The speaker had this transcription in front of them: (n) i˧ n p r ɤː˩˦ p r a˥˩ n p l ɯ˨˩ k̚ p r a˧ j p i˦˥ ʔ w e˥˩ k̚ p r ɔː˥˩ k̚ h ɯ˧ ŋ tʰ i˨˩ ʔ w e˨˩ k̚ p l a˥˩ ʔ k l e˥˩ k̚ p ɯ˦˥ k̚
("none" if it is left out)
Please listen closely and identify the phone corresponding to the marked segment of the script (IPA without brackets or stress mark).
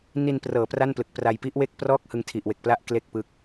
n